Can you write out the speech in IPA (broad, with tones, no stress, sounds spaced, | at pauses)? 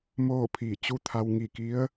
m oː˥˨ pʰ iː˧˩ t͡ɕ u˥˨ t̪ʰ a˧ w ŋ i˧˩ k i˧˥ ə̯